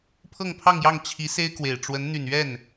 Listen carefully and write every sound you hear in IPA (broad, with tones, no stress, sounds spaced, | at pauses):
pʰ ɤ˥˧ ŋ pʰ ɑ˥˧ ŋ j ɑ˥˩ ŋ t͡ɕʰ i˧˥ s e˥ ɪ̯ k w e˨˩ ɪ̯ ʈ͡ʂ w ə˧˥ n n̪ y˨˩ n ɥ ɛ˥˩ n